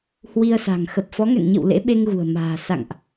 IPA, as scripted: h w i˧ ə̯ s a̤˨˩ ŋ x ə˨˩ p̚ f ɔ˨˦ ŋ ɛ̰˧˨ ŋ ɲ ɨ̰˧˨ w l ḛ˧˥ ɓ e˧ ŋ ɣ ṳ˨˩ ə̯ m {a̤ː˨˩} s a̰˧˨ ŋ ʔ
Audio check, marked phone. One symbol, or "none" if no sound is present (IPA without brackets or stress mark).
a̤ː˨˩